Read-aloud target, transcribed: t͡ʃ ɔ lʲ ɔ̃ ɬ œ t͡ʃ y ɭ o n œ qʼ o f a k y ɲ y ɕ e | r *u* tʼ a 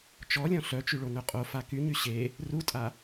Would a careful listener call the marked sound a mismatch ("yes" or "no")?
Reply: no